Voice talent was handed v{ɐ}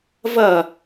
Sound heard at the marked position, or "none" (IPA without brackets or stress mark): ɐ